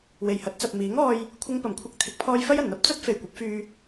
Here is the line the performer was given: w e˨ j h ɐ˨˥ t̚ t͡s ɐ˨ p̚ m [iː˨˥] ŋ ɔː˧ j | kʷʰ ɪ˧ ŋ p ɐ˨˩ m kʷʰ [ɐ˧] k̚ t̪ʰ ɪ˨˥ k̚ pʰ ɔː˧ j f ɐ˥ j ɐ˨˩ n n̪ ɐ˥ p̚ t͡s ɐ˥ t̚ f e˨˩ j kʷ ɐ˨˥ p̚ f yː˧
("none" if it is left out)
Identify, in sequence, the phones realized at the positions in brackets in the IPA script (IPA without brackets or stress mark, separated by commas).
iː˨˥, ɐ˧